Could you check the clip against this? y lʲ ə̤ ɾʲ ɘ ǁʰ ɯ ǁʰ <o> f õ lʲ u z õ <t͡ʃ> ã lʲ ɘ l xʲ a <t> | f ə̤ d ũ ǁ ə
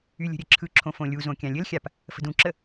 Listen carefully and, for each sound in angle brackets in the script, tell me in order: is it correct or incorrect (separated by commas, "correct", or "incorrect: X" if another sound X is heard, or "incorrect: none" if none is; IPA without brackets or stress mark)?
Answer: incorrect: õ, incorrect: kʲ, incorrect: p